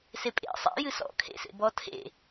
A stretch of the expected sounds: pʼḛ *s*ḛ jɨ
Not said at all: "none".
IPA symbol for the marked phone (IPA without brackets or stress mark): sˤ